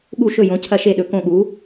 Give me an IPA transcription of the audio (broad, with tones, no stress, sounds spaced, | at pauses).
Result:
ɠ u˥˨ ʃ ɵ˥˨ j õ˨˥ cʰ ɐ˥˨ ʃ e˥˨ ɗ ɵ˨˥ k õ˥˨ ɠ u˨˥